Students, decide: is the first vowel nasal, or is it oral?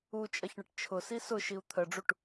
oral